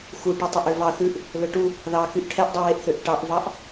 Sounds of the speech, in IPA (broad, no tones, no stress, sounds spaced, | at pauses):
x u ʈ u tˤ ɵ ʔ ø v ɑ θ ʉ ʔ | l ɵ ʈ u | ð ɑ k y ʔ ʈʰ ɛ ʔ dˤ y w e ʔ θ ø ʔ ʈ ɑ ʔ v ɑ ʔ